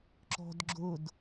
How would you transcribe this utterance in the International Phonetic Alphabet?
ǁɔ̤dɡ͡ǁʊd

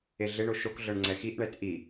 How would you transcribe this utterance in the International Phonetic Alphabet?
eɮeɳo ʃokɮɤɳ ŋ͡ǀɛxiʔɳɛt ʔi

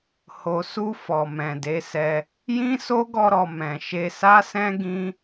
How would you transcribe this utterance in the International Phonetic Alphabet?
ho˨su˧ fɔ˨mɛ̃˨de˨˦sɛ˧ | jĩ˦so˦ ɡɔ˧ɾɔ˨ mɛ̃˨ʃe˧ sa˦sɛ̃˦ ɡĩ˦

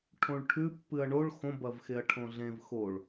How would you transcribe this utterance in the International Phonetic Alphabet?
ʈʰõɭʈʰʉ pːɨɐ̯ɳoɭ xõ bɐvxeɐ̯ʈʰõɮẽv xoɭ

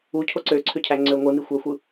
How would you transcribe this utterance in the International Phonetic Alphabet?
ucʰo ǀøǀʰøcʰæŋ͡ǀø ŋʷɯnixʷæxʷɯ

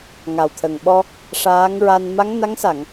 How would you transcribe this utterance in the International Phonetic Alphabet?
ŋa˨˩wt̪ʰə˨˩ŋɓɔ˧ | ʂaː˧˥ŋɹa˧n ma˧˥ŋna˧˥ŋsa˨˩˨ŋ

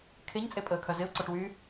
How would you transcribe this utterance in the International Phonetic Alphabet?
kʰeɲt͡sʼe pʼəːkʰœzɪʊ̯ǀɔʈ wy

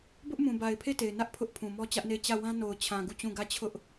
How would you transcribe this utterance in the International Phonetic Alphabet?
bʊ˦ʔmũ˨ba˨ɪ̯ pʰe˦˨te˨ɪ̯nä˦ʔ pʰʊ˦ʔpʰũ˨ mɔ˦t͡ɕä˦ʔne˦˨ɪ̯ t͡ɕä˦˨wã˦ no˨ʊ̯t͡ɕʰã˨ ɡu˦˨t͡ɕũ˦˨ ɡä˦˨t͡ɕʰʊ˦ʔ

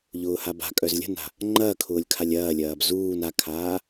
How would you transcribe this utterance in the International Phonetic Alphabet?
ʎʊːhaba̤kʼœz lʲə̤na̤ | ŋ͡ǃɐːkʰʊːlʲkʰalʲ ɐː lʲɐːbzuːn akʰaː

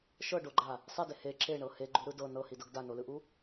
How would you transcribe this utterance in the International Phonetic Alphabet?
ʃɤɖoɡ͡ǃa | sˤide he ǁeɳɤ heɡ͡ǃuɾɯ dɤ nɤhidɤɡ danolɯʔu

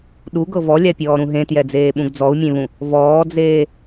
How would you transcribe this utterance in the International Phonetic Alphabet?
ɗuɡɤ vɔlʲapʲɔːɾũ ɦẽtjɛd͡zeːɓũɡ d͡zɔu̯mʲẽβũ | vɔːd͡zeː

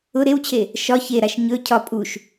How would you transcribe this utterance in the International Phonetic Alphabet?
ʊ ɾewt͡ɕʰe | ʃɒ çeɾaʃ ɲɵ cʰɒ pʼuʃ

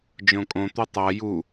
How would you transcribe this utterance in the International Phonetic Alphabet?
d͡ʒõkʼõ t̪utˤa ju

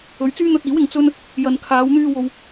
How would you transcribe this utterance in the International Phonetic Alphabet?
ɵ˨ɥt͡syː˥n̪ɵ˧t̚iː˨˥w ɪ˧ŋt͡sɵ˥n | jɐ˨n kʰaː˨˧wn̪yː˧ wo˨w

